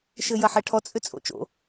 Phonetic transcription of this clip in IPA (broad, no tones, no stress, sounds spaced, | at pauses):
ʃ ɘː j ɐ ħ ɛ ʈʰ ɔ t͡sʼ ʏ t͡sʼ o̰ t͡ʃ o̰